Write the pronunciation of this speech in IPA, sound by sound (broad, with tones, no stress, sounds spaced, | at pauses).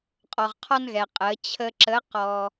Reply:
qʼ ɔ˩ ʁ qʰ ɔ˧ n ɣ ɛ˩ qʼ ə˩˧ t͡ɕʰ ə˧ ǁ ə˧˥ q ɔ˧